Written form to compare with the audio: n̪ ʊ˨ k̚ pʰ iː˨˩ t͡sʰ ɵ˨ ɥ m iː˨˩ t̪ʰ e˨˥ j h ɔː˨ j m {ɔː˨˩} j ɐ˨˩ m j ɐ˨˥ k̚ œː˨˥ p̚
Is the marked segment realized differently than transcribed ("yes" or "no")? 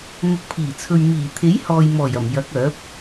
no